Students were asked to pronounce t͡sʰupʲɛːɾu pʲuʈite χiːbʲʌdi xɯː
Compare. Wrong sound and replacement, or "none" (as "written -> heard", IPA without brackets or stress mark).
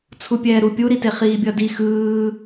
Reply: ʈ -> ɾ